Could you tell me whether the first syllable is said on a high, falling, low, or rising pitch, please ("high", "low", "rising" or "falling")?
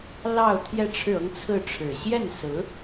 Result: falling